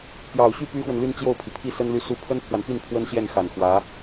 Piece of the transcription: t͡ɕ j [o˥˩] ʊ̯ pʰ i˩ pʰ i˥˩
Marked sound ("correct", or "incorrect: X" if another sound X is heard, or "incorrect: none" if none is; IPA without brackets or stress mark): correct